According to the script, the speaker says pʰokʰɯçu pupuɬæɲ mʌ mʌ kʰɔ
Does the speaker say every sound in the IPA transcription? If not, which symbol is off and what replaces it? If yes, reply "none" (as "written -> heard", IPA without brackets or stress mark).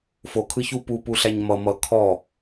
pʰ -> f